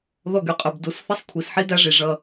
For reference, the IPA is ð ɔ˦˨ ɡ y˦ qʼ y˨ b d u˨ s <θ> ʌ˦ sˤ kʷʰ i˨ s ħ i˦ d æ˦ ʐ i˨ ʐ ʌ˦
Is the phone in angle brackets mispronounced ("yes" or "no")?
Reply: no